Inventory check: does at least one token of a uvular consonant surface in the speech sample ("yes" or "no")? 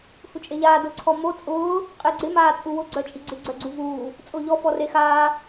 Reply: yes